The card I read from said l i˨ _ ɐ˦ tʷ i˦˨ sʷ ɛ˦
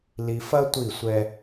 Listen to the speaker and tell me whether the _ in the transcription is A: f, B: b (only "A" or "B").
A